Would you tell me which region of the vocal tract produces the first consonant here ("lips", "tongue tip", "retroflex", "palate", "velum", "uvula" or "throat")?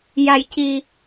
palate